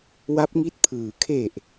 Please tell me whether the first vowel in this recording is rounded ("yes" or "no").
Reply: no